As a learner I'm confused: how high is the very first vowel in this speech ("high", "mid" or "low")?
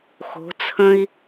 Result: mid